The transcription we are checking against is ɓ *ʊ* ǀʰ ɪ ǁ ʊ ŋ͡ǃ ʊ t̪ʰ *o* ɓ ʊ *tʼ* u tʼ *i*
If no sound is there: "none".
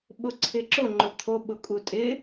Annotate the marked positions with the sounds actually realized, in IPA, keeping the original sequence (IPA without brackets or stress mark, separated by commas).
ʊ, o, kʼ, ɪ